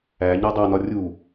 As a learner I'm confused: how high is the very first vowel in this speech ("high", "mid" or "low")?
low